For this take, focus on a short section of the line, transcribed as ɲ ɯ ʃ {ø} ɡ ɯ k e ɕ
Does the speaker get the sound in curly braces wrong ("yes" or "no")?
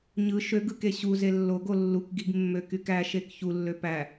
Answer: no